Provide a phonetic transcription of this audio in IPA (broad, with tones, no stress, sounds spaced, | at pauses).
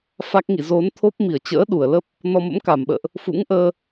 f a˦˥ k̚ ŋ ḭ˧˨ z o˨˦ n t̪ʰ o˦˥ p̚ m i˧˩ ə̯ t͡ɕ ə̰ː˧˥ ɗ u˧˩ ə̯ l ə˦˥ p̚ | n ɔ˧ m ə̰˧˥ m k a˧˩ m ɓ ə̰ː˧˨ ʔ | f ṵ˧˥ ŋ ʔ əː˧